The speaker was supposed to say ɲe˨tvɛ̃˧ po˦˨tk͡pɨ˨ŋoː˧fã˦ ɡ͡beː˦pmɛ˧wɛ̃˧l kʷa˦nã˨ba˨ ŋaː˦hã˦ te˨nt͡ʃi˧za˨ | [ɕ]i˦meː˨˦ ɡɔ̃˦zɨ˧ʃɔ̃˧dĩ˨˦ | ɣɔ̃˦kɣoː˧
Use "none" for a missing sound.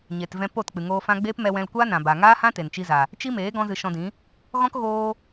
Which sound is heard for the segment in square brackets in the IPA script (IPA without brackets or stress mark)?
t͡ʃ